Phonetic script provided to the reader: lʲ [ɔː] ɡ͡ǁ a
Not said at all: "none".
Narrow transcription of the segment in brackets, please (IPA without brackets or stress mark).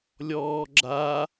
ɔː